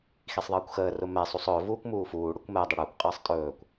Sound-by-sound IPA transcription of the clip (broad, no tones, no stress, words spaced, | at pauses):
xisˤðˤəːkʷxəː rʊmɛ sˤusˤɵː vuːkʷmuːfuː ɽʊkʷmɛ dˤəɽʊːkʷ qʼəːsˤtʼɵːkʷ